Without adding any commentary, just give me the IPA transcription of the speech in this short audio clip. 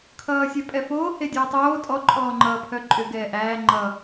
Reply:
kʰ ʌː sʲ œ pʼ ɛ f oː h e dʲ ʌː tˤ oː tʼ ɔ ǃʼ ɔː ŋ͡ǃ ʌː pʰ œ ǃʼ ʏ ɡ ɛː ʔ æː ŋ͡ǃ ʌ

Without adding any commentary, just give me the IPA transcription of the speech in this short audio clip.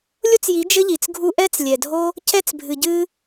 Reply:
lʲ o˦ t͡s j i˨˦ d͡ʒ ɘ˦ ʎ i˨ t͡s ɡʱ u˦ ʔ ɛ˦ t͡s lʲ ɛ˨ dʱ o˦ | c ɛ˧ t͡s bʱ ɨ˨ ɟ ɨ˧

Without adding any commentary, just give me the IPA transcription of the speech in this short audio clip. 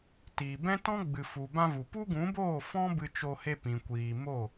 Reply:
t iː˨ b ɛ̃˦ t ɔ̃˦ ɡ͡b ɨ˨ f u˨ b ã˧ v u˨ p u˦ ɡ ũ˨˦ b oː˦˨ f ɔ̃˦ b ɨ˧ t͡ʃ o˧ h e˧ p ĩ˨ kʷ iː˨ m o˦˨

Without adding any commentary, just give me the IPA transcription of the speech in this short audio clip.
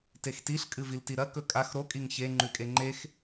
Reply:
t e x t i ɬ kʼ ɨ v i l t i ɾ ɐ k ɵ kʼ a x ɾ o kʼ i ŋ ç e ŋ͡ǃ ʉ kʼ e ŋ͡ǃ e x

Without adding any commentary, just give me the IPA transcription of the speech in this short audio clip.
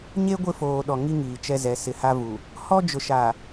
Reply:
ɲ e˦ ɡʷ ɪ˦˨ f oː˨ ɗ ɔ˨ ŋ i˦ ŋ iː˨ t͡ʃ ɛ˦ z ɛ˨˦ s ɪ˨ h a˦ v u˨ | h ɔ˦ d͡ʒ ʊ˨ ʃ a˨

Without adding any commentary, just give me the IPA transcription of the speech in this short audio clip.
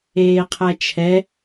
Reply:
eː qʰ æ t͡ʃʰ ɛ

